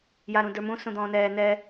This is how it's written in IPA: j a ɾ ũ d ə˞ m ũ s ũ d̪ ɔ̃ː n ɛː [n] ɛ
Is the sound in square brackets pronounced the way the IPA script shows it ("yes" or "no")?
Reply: yes